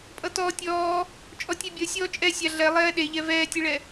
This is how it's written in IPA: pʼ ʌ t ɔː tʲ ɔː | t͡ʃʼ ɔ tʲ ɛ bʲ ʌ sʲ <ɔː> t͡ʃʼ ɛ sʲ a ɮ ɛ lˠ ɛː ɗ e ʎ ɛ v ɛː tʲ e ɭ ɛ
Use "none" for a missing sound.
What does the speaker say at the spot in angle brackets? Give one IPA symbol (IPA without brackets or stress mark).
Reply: ɔː